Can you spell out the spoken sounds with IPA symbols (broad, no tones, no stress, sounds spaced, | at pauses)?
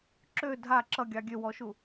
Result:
ǁ ø dʱ a ǁ ʌ ɡʲ ɑ ɡʲ ø w ɔ ʃ u